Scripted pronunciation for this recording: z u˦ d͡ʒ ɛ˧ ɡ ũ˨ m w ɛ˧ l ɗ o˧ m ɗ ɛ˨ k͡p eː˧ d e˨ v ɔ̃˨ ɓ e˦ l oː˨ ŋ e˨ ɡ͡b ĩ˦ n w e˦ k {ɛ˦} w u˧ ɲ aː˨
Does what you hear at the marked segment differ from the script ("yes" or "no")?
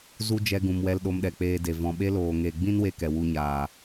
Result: yes